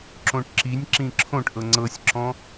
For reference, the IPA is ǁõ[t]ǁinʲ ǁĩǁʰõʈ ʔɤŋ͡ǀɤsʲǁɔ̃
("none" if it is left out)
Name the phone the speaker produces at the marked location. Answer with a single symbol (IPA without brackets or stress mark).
ʈ